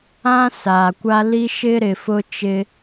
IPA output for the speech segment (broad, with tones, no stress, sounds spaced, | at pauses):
ã˦ s aː˨ kʷ a˦ l i˦ ʃ ɪ˦ ɾ ɪ˨ f ʊ˦ t͡ʃ ɪ˦